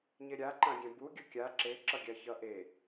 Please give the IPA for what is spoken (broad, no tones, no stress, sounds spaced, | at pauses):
ɲ e ɾʲ a ǃ ã ɡʲ ɛ̃ b u ɡʲ ʌ kʲ a ǁ e ǁ ʌ ɡʲ a ç ʌ ʔ e